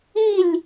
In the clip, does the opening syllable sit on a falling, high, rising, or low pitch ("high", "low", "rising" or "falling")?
falling